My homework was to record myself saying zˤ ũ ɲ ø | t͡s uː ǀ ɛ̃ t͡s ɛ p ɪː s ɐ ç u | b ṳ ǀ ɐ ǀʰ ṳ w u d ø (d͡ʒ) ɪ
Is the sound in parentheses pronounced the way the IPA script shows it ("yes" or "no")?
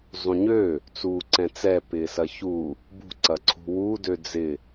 no